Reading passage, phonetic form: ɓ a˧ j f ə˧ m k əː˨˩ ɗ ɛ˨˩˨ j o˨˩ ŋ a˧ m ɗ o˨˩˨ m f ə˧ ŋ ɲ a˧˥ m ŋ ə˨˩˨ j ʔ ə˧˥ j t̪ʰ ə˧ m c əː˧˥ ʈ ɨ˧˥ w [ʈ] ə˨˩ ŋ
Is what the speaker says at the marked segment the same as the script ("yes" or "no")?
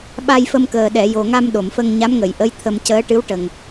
yes